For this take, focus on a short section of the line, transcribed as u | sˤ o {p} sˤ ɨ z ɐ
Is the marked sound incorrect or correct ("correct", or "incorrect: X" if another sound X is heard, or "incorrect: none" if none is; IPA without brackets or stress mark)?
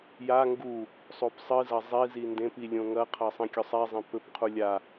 correct